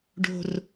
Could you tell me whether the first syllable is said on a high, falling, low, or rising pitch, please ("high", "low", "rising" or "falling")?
low